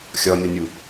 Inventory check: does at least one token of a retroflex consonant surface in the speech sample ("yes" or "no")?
no